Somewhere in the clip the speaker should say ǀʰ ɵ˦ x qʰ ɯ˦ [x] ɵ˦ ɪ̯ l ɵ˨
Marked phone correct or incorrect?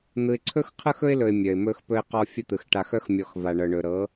correct